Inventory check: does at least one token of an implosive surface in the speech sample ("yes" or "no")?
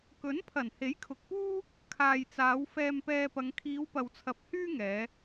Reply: no